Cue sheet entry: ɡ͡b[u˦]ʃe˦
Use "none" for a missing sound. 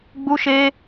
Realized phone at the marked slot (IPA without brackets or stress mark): u˦